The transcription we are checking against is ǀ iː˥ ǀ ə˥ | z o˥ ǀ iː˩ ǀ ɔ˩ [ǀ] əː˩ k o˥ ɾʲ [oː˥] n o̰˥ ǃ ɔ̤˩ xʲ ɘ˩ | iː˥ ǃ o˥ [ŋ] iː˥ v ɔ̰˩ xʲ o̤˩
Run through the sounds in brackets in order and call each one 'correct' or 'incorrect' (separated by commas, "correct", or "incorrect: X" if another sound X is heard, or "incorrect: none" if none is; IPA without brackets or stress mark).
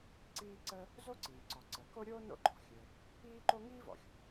correct, correct, correct